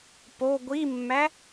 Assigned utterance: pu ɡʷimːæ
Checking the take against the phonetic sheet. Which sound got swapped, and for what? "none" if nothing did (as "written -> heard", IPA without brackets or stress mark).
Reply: u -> o